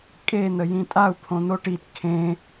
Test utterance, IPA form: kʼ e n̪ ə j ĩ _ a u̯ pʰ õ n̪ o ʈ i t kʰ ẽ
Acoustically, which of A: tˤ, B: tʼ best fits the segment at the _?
B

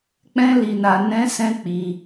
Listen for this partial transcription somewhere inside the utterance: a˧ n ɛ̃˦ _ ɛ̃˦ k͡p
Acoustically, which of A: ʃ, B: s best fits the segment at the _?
B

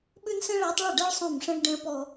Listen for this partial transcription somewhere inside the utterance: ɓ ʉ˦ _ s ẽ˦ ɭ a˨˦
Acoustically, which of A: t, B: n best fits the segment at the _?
B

